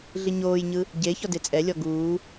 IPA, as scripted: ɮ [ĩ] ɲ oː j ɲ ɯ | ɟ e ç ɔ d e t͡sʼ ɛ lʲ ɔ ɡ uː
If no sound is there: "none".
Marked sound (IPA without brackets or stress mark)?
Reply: i